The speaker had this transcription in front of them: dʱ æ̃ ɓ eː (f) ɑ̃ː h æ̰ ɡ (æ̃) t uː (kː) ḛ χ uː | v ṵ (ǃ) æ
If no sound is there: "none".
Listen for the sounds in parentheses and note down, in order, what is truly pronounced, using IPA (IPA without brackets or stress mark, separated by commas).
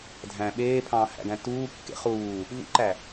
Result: pʰ, æ̃, kː, ǃ